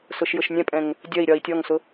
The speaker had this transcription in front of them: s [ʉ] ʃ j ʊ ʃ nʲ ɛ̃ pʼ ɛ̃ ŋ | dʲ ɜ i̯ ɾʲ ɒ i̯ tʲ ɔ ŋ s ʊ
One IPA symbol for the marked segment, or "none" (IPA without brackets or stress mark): ʊ